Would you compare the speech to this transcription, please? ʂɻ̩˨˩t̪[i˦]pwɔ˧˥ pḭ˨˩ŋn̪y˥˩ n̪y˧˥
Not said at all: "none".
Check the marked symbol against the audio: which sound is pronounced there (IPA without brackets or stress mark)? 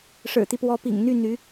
i˦